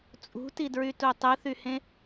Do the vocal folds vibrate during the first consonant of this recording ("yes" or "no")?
no